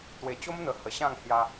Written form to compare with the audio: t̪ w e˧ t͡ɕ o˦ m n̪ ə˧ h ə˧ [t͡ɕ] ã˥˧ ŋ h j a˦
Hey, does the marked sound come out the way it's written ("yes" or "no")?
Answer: no